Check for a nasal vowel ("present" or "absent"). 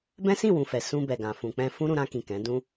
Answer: present